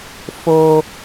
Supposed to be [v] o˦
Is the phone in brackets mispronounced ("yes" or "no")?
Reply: yes